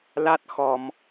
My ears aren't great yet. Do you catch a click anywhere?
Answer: no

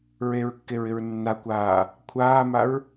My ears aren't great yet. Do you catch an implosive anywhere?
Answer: no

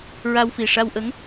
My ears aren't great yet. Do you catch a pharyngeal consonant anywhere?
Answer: no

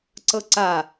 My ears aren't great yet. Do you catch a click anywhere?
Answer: yes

